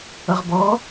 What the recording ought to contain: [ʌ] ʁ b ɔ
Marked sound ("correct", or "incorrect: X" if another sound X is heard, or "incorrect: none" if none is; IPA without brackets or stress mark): correct